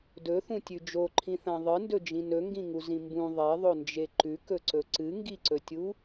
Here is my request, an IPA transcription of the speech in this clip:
d ɵ θ ũ tʲ ʉ d͡ʒ o ǃʰ ĩ θ ã ðˤ ɨ n d ɵ d͡ʒ ĩ n ɵ ŋ ɡ ĩ ŋ u z ĩ m b ũ ðˤ e ðˤ o n d͡ʒ e ǃ ʉ k ɵ ǀ ɵ ǀ ɨ ŋ ɡ i ǀ ɵ tʲ u

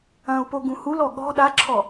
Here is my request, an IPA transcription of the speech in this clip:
ɐ̃ u̯ p o ɡ ũ h u l ɔ ɠ ɔ̤ ɗ a ǁʰ ɔ

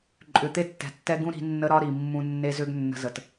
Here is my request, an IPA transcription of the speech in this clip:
ǃʼ ʏ˨ t̪ e˦ tː ɛ̤˨ tː ɛ˦ ɡ ũ˦ ɾ i̤˨˦ nː ə˦ ɾ ɒ˦ ɾ i˨ mː ũ˦ nː e˦ z ʏ˦ ɡ nː ə̤˦ z ə˨ t

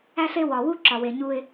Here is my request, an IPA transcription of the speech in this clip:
æ˦ ɬ e˦ w ɒ˨ w u˦ ǁ ɒ˨ w e˨ ɲ u˦ ɪ̯

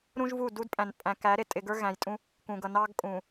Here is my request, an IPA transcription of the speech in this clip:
ɾ ũ˦ ʒ v u˦˨ d u˦ d pʼ æ̃˨ n pʼ æ̃˨ k æ˨˦ ɾ ɪ˨ tʼ ɪ˨ ɡ ə˞˦ ɣ æ̃˨ j tʼ ũ˦ | k ũ˨ ɡ ʌ˨ n ɑ˦ ɡ kʼ ũ˨

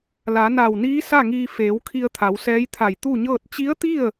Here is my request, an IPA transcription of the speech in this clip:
l a˩˧ n a˧˩ w n iː˧˥ s a˥˨ ŋ iː˧ f eː˩˧ w kʰ i˧ ə̯ t̪ʰ a˩˧ w s ɛː˧˥ j t̪ʰ a˧˩ j t̪ u˥˨ ɲ ɤː˥˨ t̚ t͡ɕ i˧˥ ə̯ t̪ i˥˨ ə̯

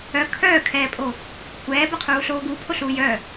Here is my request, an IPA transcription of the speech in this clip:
œ kʰ œː kʰ ɛː pʼ o | kʷʰ ɛː b œ qʰ uː ɬ oː ɡ u pʰ o ɬ uː j œ

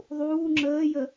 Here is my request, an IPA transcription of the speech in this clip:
ðˤ uː ŋ͡ǁ əː j ə

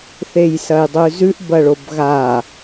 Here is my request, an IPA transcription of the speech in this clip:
θ e j s ɐ j dˤ ʉ z ʉ ʔ b ɐ ɭ o b ɣ a

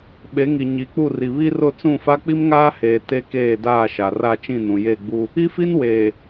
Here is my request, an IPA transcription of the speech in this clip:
ɓ e˨˦ ŋ i˨ ɲ i˨˦ k͡p u˦˨ r i˨ β i˦ r ʊ˦˨ t͡s ũ˦˨ f a˦ k͡p i˦ m ŋ aː˦ h eː˨ t e˦ k eː˦˨ d aː˦˨ ʃ a˨ r a˦˨ t͡ʃ ĩ˦˨ n ũ˨ j e˦˨ ɡ͡b u˦ | i˦ f i˦ n w eː˨

